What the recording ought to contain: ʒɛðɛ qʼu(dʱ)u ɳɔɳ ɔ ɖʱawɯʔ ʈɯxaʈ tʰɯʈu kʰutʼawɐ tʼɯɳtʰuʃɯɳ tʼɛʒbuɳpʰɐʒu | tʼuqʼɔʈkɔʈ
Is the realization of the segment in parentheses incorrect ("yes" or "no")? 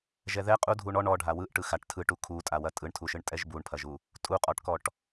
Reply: no